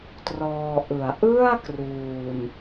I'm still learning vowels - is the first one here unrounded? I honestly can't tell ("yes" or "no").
no